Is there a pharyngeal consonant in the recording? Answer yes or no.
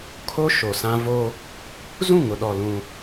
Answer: no